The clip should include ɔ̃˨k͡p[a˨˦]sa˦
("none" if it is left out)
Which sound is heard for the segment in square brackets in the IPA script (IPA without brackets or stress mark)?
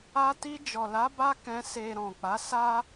a˨˦